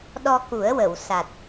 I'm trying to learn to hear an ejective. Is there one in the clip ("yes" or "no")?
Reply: no